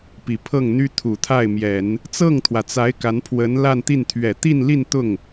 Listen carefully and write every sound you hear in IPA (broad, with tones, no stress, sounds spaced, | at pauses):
p i˨˩ pʰ ɤ˥˩ ŋ n̪ y˥ t̪ʰ u˨˩ t̪ʰ a˥˩ ɪ̯ m j ɛ˨˩˦ n | t͡s ɤ˥˩ ŋ t̪ʰ w ä˩ t͡s a˧˥ ɪ̯ k a˧˥ n pʰ w ə˧˥ n l a˥˧ n t̪ i˥˩ n t̪ʰ ɥ ɛ˨˩ t̪ i˥˧ n l i˥˧ n t̪ ʊ˥˩ ŋ